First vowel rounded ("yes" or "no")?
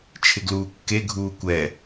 no